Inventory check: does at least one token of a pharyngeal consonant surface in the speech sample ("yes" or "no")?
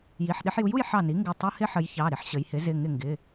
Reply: yes